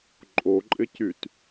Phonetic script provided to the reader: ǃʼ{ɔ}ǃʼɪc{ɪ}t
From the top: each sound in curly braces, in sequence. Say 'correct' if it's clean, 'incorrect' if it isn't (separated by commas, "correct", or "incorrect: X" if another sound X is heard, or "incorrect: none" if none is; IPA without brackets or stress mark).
incorrect: o, incorrect: y